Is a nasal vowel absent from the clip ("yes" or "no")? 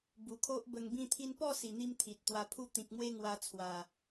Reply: no